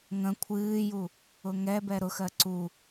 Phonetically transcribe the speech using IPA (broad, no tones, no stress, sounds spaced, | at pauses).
ŋ ə̃ kʷʰ ɨː j u | ʊ ŋ ɛ b ɛ ɾ ʊ x ɜ ǀ u